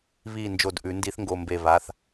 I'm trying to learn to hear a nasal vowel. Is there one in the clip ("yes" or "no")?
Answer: no